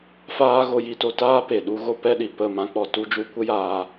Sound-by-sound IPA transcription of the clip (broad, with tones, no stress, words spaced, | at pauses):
faː˦ ɣo˧ ji˧to˧taː˦ pe˨ɗu˦ɣo˦ pɛ˦ɗi˨ pə˦˨ mã˦k͡pɔ˧ tu˦d͡ʒu˦ kʷə˦jaː˧